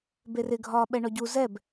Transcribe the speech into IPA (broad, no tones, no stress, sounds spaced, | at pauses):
b e r ɪ ɡʱ ɒː ɓ ɛ ɳ ɔ ɟ u z ɛ b